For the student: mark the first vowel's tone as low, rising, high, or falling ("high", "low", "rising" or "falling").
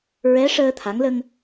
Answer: rising